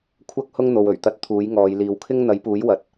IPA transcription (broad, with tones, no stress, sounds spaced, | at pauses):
kʷʰ ɐ˥ k̚ h ʊ˥ ŋ n̪ o˨ w ɵ˨˩ ɥ t̪ ɐ˧ t̚ t̪ʰ uː˨˥ j ŋ ɔː˨˧ j l iː˨ w kʰ ɪ˥ ŋ n̪ ɐ˨˥ j p uː˨˥ j w ɐ˨ t̚